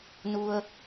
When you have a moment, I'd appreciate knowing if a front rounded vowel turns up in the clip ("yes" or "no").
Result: no